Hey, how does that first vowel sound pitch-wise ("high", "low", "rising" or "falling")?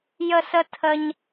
high